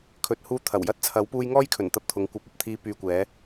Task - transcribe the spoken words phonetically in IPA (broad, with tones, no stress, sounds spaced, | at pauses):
kʰ ɵ˨ t̚ h uː˧ t̪ʰ ɐ˨˩ w j ɐ˥ t̚ t͡sʰ ɐ˨˥ w p uː˧ j ŋ ɔː˥ j kʰ ɵ˨˩ n t̪ ɐ˧ p̚ t̪ʰ ʊ˨˧ ŋ kʷ ɐ˨˥ p̚ ɐ˨ p̚ t̪ʰ iː˧ p yː˨ kʷ ɛː˨˧